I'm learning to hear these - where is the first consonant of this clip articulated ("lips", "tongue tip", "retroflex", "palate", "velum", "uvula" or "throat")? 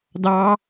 tongue tip